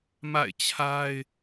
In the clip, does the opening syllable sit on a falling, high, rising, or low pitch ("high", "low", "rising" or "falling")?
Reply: falling